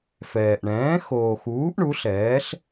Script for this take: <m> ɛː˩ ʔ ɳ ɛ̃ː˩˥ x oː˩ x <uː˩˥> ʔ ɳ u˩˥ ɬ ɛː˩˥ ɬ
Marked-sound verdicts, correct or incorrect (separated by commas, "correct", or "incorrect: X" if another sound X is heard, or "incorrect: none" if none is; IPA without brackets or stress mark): incorrect: f, correct